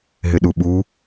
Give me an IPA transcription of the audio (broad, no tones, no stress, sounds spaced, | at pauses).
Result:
ɦ ɪ ɗ u ɓ u